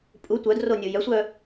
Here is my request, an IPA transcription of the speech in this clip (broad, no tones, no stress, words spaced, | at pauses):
pʼu tʷœdro nʲojœsʷœ